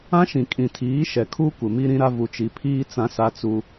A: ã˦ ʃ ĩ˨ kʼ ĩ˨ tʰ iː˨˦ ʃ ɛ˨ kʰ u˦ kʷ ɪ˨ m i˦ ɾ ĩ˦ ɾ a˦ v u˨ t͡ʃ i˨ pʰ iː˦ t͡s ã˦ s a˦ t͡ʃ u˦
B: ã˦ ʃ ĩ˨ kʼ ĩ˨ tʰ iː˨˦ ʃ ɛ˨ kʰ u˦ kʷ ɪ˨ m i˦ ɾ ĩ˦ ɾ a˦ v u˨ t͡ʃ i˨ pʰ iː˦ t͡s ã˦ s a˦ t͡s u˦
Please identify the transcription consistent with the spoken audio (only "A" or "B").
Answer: B